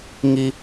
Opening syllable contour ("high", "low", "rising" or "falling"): high